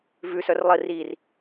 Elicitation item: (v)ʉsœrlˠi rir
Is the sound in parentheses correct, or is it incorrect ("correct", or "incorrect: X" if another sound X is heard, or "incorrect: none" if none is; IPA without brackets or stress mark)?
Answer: correct